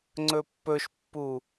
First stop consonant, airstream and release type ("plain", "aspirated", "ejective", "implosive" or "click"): click